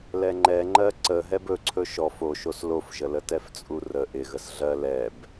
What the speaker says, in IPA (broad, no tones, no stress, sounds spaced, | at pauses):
l ɛ ŋ͡ǃ ɛ ŋ͡ǃ ɜ ǀ ə ɦ ɛ b ɵ ǀʰ ɵ ʃ ɔ f o ʃ o s l o f ʒ ə l ə t ɛ f t͡sʼ u r ə ʔ ɪ ɣ ə s ɮ ɜ l ɛ b